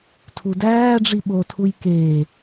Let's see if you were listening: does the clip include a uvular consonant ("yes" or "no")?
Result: no